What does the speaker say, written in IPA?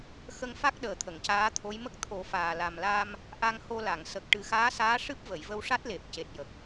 x ə˧ ŋ f a˦˥ k̚ ɗ əː˨˩ t̪ʰ ə˨˩˨ ŋ c aː˧˥ t̪ʰ o˧˥ j m ə˦˥ k̚ t̪ʰ o˨˩˦ f aː˨˩ l a˨˩ m l a˧ m | ʔ a˧ ŋ h o˧ l a˨˩˨ ŋ s ə˨˩ k̚ ʈ ɨ˨˩˦ x aː˧˥ s aː˧˥ ʂ ɨ˦˥ p̚ v ə˨˩˨ j v ə˧ w ʂ a˦˥ t̚ l e˨˩ p̚ c e˨˩ t̚ j ə˨˩ k̚

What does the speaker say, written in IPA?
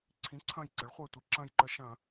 ǀʰ ĩ˩˥ ǀʰ ɐ̃˧˩ j ǀ ə˩˥ ɭ χʷ ɜ˧˩ tʷ i˧˩˧ ǁ ɐ̃˧˩ j ǃ ə˧˩˧ ʃ ɐ̃˧˩˧

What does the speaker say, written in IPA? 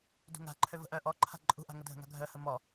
d ṳ ŋ a̤ ǃʰ ø v ə̤ ʔ œ ʔ ɔ ǃʰ a̤ ǃʼ ṳ ʔ a̤ ŋ ə dʱ ə̤ ŋ a̤ ɡʱ œ h ə m ɔ

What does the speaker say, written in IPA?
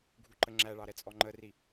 ɡʱ u ǃ ə ŋ͡ǁ æ ɭ ɑ ɾ ɛ t͡sʼ ɔ ŋ͡ǃ ə r i

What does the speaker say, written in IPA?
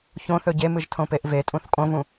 ç õ θ ɵ ɟ e m ɨ ʒ tʰ õ p e ʔ v e tʼ ũ θ kʼ õ v ũ

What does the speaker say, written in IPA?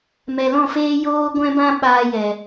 m ɛ˨ l ɔ̃˦˨ f eː˦ j oː˦ ɡʷ ɛ̃˦ b ã˦ ɓ aː˧ j ɛ˨

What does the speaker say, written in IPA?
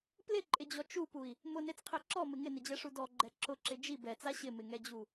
p l ɪ ǃʼ ɪ d͡ʑ ɔ t͡ʃ u p u i̯ | m ʊ n e t͡s qʰ e ǁ ɔ m ɪ ŋ ɪ n ɪ d͡ʑ ɛ ʂ u d ɔ ɡ͡ǃ ɛ ǁ ʊ ǁ ɪ d͡ʒ i b ɛ t͡s a ɕ ɪ m ɪ ŋ ɛ d͡ʑ u

